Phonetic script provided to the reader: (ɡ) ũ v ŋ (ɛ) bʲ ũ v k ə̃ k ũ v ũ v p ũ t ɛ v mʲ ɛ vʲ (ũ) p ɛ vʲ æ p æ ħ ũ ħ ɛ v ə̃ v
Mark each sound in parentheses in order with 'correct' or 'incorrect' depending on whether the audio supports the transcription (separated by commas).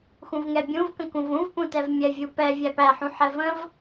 incorrect, correct, incorrect